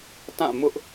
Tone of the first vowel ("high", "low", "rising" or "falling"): falling